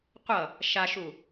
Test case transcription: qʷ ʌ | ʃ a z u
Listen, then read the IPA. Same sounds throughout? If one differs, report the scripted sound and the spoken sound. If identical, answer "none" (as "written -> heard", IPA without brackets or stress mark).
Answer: z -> ʃ